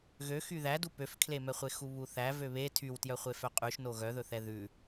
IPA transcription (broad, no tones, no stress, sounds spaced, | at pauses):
ɣ ø x y ð æ d u p ø f kʰ l e m ɛ χʷ e x u β u θ æ v ø β e tʰ y w t j œ χʷ e f œ qʼ ʉ ʃ n o ɣ œ ð ɵ θ ɛ ð ʉ